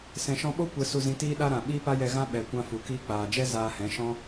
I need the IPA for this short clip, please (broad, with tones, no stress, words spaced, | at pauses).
sɛ̃˨ʃɔ̃˧ɓo˦ kʷɛ˧su˧zĩ˧ tiː˦ɗa˦ɾã˨ ɓiː˦pa˦jɛ˧ɣã˦ ɓɛ˨kʷã˧ fu˨kiː˧k͡paː˨d͡ʒɛ˦ zaː˧hɛ̃˨˦ʃɔ̃˦